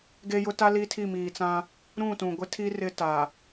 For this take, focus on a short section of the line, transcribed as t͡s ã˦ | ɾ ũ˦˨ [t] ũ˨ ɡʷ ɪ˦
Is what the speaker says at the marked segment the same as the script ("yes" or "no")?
yes